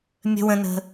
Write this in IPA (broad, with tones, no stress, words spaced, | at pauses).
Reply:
mʲə̤˧wə̃˧nə̤˧